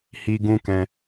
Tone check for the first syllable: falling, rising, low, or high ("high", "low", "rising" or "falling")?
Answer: high